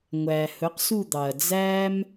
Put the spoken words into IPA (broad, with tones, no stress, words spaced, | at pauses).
ŋʷæː˩ hɵ˩˥qsu˥˨ d̪ɑ˩ɐ̯ d͡zæː˥m